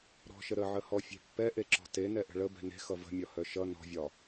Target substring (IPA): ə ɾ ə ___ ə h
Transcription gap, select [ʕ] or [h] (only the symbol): ʕ